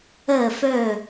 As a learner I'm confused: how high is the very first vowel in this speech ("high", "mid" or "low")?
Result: mid